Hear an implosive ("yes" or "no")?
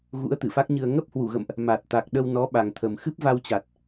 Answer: yes